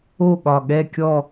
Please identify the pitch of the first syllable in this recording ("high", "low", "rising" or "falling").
falling